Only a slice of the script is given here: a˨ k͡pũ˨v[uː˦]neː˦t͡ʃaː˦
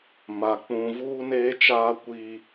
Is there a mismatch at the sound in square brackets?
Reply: no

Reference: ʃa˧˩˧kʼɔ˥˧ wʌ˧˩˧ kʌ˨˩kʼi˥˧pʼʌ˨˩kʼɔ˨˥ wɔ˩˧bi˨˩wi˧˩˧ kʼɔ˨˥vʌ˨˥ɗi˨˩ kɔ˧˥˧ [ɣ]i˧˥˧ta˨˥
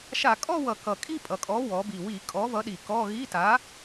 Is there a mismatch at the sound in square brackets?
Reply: no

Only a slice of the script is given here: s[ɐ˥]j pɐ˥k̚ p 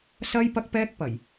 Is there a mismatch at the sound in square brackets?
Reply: no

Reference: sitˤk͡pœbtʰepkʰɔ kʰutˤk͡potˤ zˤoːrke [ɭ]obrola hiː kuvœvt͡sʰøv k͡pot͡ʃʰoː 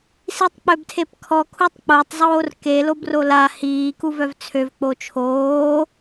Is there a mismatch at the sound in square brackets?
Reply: yes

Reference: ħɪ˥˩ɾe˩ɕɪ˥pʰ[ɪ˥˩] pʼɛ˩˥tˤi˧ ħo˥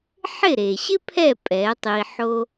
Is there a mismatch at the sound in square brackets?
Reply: yes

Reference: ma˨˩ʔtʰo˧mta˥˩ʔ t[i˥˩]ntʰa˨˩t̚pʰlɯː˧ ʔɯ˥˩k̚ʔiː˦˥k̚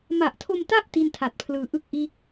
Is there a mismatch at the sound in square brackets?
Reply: no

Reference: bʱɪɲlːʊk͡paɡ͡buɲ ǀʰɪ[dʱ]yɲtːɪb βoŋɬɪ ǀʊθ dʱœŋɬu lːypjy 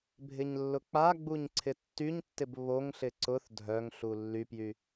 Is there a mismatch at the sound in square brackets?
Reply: yes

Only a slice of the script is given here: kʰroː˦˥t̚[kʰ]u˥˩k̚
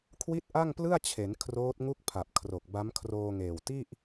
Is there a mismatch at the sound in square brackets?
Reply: yes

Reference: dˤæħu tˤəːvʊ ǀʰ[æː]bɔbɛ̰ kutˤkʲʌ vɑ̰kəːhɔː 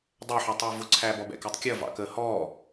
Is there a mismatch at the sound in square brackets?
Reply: no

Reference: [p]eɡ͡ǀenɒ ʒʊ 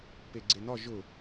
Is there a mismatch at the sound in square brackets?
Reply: no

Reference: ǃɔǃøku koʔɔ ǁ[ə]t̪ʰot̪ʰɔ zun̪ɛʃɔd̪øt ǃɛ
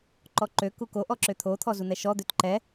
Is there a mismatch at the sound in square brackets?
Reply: yes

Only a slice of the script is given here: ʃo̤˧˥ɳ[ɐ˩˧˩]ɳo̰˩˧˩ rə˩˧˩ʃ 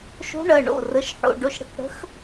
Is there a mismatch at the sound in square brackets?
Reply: no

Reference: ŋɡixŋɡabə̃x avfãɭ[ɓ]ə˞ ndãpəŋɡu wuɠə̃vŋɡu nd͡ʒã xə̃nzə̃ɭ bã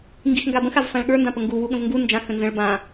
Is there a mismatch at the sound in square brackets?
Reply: yes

